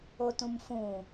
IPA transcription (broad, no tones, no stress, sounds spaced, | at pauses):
o t ũ m f ũ